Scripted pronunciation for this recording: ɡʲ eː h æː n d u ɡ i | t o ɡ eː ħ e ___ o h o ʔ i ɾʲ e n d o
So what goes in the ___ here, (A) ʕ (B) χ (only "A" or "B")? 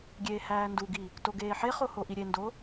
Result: B